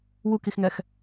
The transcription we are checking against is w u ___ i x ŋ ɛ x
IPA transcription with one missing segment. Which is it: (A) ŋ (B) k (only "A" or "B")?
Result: B